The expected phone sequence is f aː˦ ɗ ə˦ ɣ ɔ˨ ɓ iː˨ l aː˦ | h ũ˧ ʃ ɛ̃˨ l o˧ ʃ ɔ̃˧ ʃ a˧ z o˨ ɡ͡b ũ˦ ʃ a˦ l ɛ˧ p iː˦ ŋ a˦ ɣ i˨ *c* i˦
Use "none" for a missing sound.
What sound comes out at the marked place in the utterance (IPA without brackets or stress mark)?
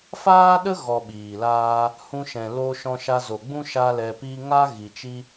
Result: t͡ʃ